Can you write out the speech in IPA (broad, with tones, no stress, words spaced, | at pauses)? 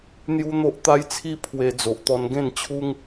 n̪ju˦n̪o˦ʔt̪a˦jt͡sʰi˦ pʰwe˧ d͡zo˨ʔt̪ɔ˧nɡẽ˥˧nt͡ɕʰu˦ŋ